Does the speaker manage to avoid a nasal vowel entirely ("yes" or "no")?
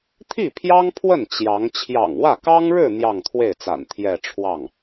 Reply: yes